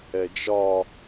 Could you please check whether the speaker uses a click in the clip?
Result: no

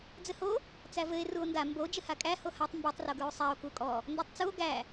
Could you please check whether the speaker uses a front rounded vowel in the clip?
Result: no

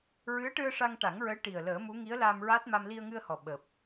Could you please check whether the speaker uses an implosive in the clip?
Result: yes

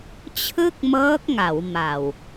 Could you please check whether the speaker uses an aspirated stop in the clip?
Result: yes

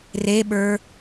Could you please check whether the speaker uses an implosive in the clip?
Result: yes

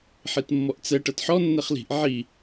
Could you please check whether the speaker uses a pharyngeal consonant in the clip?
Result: yes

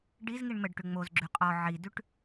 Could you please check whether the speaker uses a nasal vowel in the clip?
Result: no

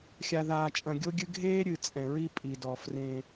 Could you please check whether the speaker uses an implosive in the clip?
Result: no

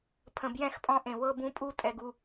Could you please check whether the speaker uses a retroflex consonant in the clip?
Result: no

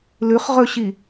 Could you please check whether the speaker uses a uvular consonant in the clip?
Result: yes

